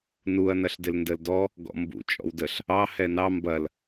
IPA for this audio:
nuɐ̯ nɐɬdɪlndəldɔ | ɡɔ̰mbṵ t͡ʃʼɔ̰wdəɬ | ɑ hɛnɑ mbɐl

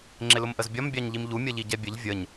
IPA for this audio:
ŋ͡ǁɪlʊmʔəzbʲɒm bʲɑɲʎimʎu mʲʌʎiɟɛbʲəʎ vʲəɲ

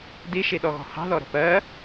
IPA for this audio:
diʃiɗɔɣɔ̤ hɑ̤ðɔɾə̤ pɜ

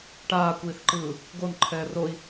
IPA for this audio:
ʈaːkʷiːθǃɯː | ɡonǃʰɛː roi̯

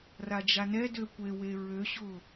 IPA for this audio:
rad͡ʒanɛdø kʷewe ɹøɕʊ

